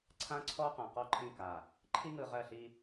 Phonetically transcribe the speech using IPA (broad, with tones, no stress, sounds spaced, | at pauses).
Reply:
ǀʰ ã˦ ǀʰ ɔ˦ q ã˨ q ɔ˦˨ ǃʰ ĩ˦˨ k a˨ | ǃʰ i˦ ŋ ɯ˨ ʁ ɜ˦˨ ɬ i˦